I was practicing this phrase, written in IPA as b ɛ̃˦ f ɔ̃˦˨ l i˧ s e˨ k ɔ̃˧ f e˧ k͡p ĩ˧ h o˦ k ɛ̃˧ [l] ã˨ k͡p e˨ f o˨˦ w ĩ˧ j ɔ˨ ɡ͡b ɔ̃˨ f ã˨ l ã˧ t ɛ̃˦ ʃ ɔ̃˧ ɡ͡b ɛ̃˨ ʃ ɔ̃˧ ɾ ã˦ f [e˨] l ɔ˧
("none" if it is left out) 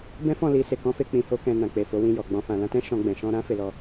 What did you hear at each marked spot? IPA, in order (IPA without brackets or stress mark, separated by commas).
n, e˧